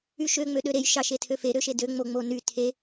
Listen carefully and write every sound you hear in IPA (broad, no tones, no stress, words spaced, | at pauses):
yʃø ŋ͡møɗøɾej ʃɑʃetʰøfe ɾøʃedø ŋ͡moŋ͡mony tʰe